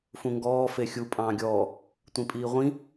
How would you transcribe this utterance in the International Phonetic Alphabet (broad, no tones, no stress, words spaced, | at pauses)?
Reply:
fũŋɡɔː fexʲu pʼɑ̃ːɡʲɔː | tʷĩpʼiːʁʷĩ